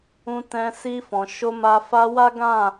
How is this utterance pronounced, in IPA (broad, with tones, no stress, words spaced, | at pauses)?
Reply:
ũ˧tɛ̃˧ si˧ fɔ̃˨ ʃo˧ma˧ fa˧wa˦ ɡã˦˨